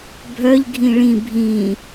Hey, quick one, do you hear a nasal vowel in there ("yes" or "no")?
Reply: yes